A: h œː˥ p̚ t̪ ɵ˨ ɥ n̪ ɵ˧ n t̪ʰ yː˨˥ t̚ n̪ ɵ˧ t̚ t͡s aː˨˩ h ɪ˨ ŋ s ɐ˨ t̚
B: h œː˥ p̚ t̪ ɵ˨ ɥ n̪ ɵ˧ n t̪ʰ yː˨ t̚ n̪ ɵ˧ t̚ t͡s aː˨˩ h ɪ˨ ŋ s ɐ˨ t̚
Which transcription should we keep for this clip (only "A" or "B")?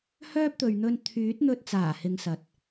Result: A